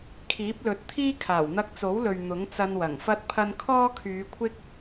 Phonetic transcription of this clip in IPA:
kʰiː˨˥p̚lɵ˨˥t̚t̪ʰiː˥ kʰaː˨˩wn̪ɐ˧k̚t͡so˨˥wlɵ˨ɥ n̪ʊ˨˥ŋ t͡sɐ˧nwɐ˨˩ŋfɐ˥t̚pʰɐ˥n kʰɔː˥kʰyː˨˧kʷʰɪ˥k̚

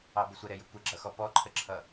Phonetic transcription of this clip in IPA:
ɑbəsʷəɾɛ jəkʷəɡ͡ǁʌxɔ pɔǃʰəǁʰʌ

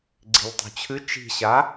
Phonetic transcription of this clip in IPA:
ɡ͡ǀi̤ʎtˤṳt͡ɕʰɨ t͡ʃi̤ɕa

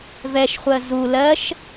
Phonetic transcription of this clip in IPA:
vɛʃχʷɜ zu lɜʃ

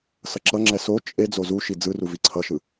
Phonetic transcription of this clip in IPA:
sʌǁʌŋ͡ǁɛ so t͡ʃʼe d͡zozuʃi d͡zɯru viǀʰʌʃɯ

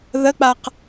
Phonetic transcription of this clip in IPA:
ðək͡paq

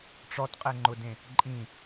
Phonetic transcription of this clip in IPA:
ʈ͡ʂɔtqʼɛŋ͡ǃʊdẽ | ǃʼĩ

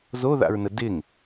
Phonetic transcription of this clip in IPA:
zoða̰ɹnə dɪŋ

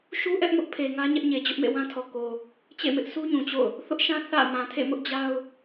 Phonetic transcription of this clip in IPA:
ʃu˦ ʔɛ˦ʔmʊ˦ʔ pʰe˨ŋä˦ ɲɛ˦ʔɲe˨d͡ʑʊ˦ʔ mḛ˦˨wã˦tʰɔ˨ ko˨ | t͡ɕḛ˦˨mɪ˦ʔ sʰu˦ɲũ˨t͡ɕo̰˦˨ʊ̯ | θʊ˦ʔʃã˦ θä̰˦˨ mã˨tʰḛ˦˨mʊ˦ʔ d͡ʑa˦ʊ̯

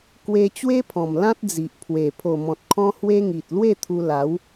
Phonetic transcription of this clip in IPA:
kwe˧ t͡ɕwe˦pʰɔ̃˨˩m lã˦t̚d͡zi˨ʔpʰwe˨˩ pʰo˨˩mɔ̃˨t̚kʰɔ̃˧ hwe˦ŋi˨t̚ lwe˥˧t̪ʰu˧ la˨˦w

